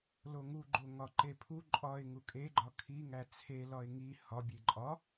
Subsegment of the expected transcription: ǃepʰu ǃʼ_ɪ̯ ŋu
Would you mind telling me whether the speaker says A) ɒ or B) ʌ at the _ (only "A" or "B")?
A